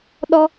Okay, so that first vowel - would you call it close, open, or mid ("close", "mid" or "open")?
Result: mid